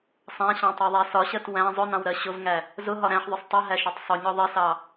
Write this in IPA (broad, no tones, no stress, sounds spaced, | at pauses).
sˤ æ̃ ɕ ɑ̃ tˤ ɜ ðˤ æ s ɒ ɕ ɜ t w æ̃ zˤ ʊ n ɑ̃ w ɾ ɜ ɕ ʊ v ŋ æ | z ʊ ɦ ɒ ɾ æ̃ ħ ðˤ ʊ sˤ tˤ ɪ ɦ æ ʃ ɒ tˤ sˤ ʊ ɲ ɒ ðˤ ɪ s ɑ